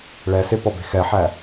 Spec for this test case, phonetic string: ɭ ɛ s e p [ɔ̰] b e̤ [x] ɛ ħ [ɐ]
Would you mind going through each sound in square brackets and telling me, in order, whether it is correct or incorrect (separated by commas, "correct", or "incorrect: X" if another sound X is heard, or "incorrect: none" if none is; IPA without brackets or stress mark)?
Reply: incorrect: ɔ, correct, incorrect: æ